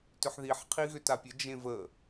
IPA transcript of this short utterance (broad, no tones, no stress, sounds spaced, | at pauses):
t ʏ ħ ð i ħ qʰ i ɣ ʏ t a pʲ ə d͡ʒ ẽ v ə